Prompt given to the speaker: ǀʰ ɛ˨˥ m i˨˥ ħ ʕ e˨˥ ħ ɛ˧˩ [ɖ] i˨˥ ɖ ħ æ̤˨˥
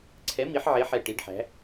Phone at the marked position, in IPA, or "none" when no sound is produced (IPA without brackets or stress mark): ʈ